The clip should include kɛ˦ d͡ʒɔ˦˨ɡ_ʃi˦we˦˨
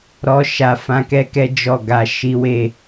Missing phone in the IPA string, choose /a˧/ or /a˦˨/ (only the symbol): a˧